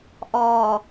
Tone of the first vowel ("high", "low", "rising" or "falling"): low